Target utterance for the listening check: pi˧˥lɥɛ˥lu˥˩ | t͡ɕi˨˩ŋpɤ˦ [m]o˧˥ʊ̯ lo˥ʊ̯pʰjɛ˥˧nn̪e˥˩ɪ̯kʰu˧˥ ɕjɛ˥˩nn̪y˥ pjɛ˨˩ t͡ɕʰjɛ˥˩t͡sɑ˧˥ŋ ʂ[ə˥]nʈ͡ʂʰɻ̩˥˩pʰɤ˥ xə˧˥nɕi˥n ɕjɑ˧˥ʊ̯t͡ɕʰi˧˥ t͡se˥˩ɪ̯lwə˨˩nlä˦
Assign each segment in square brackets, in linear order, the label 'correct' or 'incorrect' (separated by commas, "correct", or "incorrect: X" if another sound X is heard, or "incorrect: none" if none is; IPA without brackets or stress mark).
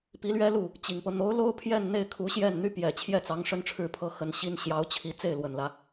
incorrect: n̪, correct